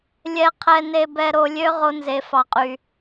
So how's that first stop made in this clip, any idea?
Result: aspirated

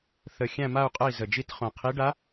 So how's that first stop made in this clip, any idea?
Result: ejective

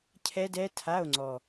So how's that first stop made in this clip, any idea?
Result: aspirated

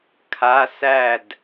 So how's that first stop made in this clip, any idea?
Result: aspirated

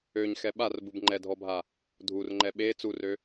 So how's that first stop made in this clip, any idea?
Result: implosive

